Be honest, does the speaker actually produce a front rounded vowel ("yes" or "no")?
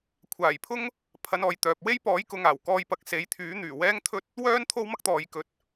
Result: yes